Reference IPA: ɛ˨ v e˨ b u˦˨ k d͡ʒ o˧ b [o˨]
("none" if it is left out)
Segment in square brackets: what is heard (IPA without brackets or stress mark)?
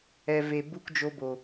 o˨